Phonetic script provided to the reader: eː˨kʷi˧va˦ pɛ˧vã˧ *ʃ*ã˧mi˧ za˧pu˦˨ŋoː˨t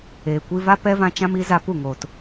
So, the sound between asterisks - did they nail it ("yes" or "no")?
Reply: no